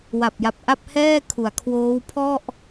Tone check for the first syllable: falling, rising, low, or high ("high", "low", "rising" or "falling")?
low